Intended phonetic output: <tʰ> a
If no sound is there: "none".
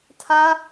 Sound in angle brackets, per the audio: tʰ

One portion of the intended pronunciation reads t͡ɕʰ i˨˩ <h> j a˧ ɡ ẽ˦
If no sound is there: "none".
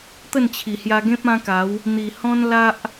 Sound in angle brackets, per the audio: h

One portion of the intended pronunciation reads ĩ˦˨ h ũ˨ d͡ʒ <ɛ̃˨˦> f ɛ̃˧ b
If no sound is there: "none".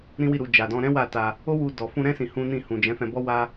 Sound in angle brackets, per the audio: ɛ̃˨˦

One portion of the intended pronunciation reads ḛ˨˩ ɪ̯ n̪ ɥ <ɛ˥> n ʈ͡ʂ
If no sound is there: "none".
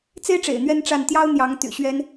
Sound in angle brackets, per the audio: ɛ˥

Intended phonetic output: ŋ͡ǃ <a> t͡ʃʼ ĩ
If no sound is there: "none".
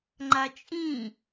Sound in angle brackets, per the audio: a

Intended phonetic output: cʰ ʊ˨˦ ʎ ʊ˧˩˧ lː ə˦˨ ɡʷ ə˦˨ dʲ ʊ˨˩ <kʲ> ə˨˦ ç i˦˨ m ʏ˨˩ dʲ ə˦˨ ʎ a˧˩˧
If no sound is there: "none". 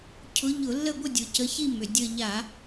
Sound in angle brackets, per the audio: c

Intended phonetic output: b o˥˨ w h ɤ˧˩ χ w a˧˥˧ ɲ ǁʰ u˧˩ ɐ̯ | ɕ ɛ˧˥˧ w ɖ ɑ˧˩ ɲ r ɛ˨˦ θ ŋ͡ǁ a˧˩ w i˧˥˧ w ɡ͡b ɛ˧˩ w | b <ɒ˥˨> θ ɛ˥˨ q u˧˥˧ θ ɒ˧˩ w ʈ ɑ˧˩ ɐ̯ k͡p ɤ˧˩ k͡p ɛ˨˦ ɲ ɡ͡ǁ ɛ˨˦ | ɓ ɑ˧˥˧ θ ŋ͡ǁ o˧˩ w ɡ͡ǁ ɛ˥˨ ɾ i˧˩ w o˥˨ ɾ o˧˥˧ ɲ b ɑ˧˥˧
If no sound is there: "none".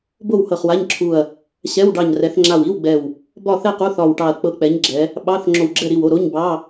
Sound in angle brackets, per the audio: ɒ˥˨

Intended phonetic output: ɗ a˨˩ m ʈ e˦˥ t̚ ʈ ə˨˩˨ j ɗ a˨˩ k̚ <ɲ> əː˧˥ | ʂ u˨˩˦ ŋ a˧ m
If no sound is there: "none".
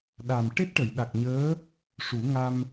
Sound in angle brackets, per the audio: ɲ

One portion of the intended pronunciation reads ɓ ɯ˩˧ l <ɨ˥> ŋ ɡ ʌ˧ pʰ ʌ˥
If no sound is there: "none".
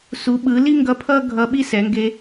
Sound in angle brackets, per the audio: i˥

